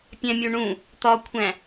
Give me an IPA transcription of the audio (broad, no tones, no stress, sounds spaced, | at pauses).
pʲ æ̃ mʲ o ɳ ũ | t̪ ɒ kʷʰ æ̃